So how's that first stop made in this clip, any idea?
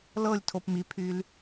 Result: aspirated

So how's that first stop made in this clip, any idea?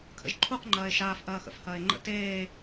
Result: aspirated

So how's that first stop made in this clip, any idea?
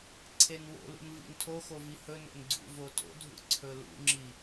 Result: click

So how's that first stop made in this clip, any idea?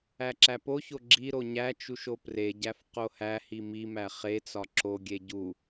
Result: click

